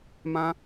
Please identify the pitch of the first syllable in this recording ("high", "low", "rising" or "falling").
high